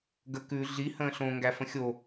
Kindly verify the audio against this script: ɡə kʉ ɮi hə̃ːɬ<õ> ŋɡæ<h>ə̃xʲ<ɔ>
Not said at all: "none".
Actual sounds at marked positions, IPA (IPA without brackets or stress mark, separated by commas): õ, f, o